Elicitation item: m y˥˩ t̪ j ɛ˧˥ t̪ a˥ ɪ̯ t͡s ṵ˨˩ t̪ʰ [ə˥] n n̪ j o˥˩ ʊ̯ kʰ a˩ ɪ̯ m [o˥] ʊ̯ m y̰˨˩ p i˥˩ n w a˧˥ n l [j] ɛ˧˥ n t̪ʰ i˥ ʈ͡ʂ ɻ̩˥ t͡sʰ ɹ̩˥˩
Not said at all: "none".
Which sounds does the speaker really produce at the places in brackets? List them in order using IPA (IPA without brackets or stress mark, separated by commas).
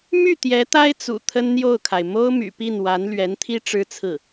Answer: ə˥, o˥, ɥ